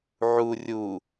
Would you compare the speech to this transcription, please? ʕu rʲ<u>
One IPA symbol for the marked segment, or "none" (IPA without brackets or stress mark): u